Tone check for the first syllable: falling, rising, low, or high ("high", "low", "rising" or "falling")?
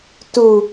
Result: low